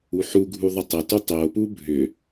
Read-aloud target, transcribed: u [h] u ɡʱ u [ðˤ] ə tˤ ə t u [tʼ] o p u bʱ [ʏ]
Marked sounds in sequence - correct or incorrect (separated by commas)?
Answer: incorrect, correct, incorrect, correct